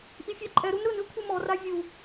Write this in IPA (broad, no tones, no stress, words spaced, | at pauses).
ʔifʲaǃʼɛɾun ɾɯnɨ kʷʰɨmɔra vʲu